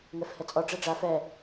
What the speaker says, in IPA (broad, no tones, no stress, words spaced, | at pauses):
ŋɛfhɛt͡sʼɔ ɖ͡ʐɛɖ͡ʐa fɛ